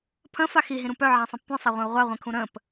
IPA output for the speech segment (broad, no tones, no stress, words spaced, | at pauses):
pʰə̃fa xiɦĩɾũ pœʕãsˤĩp tʷĩsˤaʁʷœ̃u̯ ʁʷaʁʷĩkʰũ ɾə̃p